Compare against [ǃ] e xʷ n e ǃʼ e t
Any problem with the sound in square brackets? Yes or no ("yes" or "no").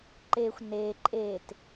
no